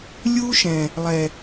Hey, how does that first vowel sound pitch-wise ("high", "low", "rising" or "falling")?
high